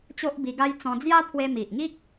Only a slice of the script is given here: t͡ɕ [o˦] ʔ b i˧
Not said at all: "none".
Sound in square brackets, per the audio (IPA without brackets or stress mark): o˦